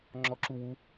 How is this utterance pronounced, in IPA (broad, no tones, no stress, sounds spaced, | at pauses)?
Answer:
ŋ͡ǁ ɔ ǁ u w u